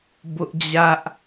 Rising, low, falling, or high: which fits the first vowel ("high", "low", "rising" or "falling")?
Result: high